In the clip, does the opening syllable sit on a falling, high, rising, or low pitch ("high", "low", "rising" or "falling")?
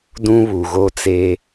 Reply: high